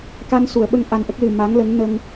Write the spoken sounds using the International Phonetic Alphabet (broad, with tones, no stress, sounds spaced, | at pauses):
k a˧ n s u˨˩˨ ə̯ ɓ ə˧ ŋ ʔ a˧ n ʔ ə˦˥ k̚ l ɨ˨˩ m a˧˥ ŋ l ə˧˥ ŋ n ə˧ ŋ